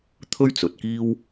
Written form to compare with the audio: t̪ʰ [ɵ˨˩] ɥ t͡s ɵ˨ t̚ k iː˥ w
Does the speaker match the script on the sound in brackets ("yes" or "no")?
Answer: no